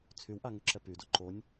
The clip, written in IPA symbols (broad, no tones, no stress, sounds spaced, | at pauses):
t͡sʰ y w ʔ a ŋ y ǁ ɛ p y d o ǃ o nʲ